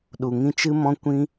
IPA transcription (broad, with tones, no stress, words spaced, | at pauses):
ɗu˨ŋĩ˧t͡ʃɨ˦mɔ̃˦ kʷĩ˦